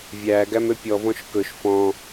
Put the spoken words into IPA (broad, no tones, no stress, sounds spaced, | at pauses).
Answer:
vʲ æ ɡ æ m ø pʲ ɔ v ɔ̃ ʃ k ɵ ʃ f ɔ̃